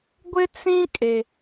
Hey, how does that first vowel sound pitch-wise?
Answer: high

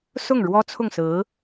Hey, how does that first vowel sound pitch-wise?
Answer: falling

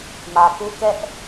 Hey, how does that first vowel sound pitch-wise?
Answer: low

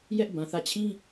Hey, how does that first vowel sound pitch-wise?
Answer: high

